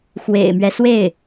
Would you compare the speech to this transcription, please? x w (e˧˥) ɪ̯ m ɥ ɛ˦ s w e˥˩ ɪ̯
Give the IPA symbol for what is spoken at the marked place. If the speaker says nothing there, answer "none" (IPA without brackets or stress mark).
ḛ˨˩